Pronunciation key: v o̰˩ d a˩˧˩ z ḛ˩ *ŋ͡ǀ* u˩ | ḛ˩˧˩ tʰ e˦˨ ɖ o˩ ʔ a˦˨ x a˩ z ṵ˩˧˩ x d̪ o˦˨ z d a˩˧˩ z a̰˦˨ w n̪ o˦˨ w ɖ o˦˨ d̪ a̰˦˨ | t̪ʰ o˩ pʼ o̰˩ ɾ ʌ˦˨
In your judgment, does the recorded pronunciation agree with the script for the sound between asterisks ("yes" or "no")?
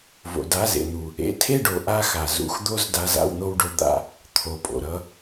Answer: no